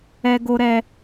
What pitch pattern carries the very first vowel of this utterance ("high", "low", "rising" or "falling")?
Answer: high